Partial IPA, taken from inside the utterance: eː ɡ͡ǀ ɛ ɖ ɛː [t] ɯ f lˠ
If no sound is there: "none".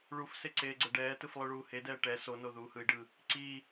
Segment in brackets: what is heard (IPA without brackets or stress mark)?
t